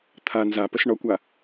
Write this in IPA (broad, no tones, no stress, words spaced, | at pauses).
t̪ʰa nzapəs ɳɔkʷa